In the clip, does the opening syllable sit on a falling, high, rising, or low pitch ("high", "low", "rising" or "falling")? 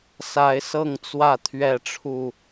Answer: rising